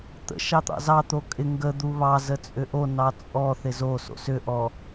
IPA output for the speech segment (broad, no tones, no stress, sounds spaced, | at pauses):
t̪ ə̰ ʃ ɑ t̪ ɑ̰ z ɑ t̪ o kʼ ɪ ŋ ɡ ə d̪ u β ɑ z ə t͡sʼ ʏ ʔ o n ɑ t͡sʼ ɔ θ ɪ z o s o̰ s ʏ ʔ ɔ